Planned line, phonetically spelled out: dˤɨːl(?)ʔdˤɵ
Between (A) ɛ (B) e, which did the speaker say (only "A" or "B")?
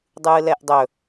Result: A